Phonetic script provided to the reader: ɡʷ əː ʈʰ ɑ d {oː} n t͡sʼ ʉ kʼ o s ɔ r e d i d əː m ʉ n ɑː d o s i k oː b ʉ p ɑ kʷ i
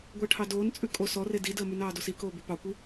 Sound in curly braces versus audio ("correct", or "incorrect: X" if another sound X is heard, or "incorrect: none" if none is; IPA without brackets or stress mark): correct